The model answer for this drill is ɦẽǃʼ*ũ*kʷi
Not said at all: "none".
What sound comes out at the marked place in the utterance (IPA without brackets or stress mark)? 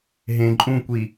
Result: ũ